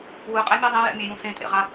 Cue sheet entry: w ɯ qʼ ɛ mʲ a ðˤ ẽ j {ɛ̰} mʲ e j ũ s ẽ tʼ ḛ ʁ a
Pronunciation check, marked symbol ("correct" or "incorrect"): correct